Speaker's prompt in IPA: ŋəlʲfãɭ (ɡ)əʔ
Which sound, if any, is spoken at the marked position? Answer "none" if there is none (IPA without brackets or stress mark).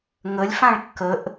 kː